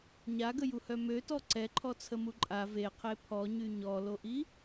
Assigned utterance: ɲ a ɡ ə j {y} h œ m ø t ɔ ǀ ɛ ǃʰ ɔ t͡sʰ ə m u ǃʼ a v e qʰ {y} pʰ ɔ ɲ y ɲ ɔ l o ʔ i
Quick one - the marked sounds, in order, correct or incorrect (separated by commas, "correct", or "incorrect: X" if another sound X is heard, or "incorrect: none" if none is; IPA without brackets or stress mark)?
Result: incorrect: u, incorrect: e